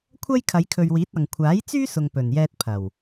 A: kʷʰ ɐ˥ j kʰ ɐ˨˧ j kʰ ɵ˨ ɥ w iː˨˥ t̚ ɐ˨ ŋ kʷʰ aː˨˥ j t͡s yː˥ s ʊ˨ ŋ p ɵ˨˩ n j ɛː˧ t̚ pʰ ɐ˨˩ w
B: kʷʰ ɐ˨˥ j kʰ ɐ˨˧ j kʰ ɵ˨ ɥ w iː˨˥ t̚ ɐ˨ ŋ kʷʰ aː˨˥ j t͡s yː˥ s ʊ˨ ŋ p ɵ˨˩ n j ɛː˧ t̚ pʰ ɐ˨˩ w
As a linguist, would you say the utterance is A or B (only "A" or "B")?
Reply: A